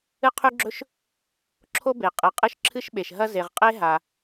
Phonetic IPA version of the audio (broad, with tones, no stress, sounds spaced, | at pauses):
ɨ˥ qʰ ʉ˥ ɡ͡ǁ ɵ˥ ʃ | ǁʰ o˥ b e˩ qʼ ɨ˩ qʼ ɨ˥ ʃ ǁʰ ɨ˥ ʃ ɓ e˩ ʃ ɦ ɐ˥ z e˩ ʁ qʼ e˥ ɦ a˩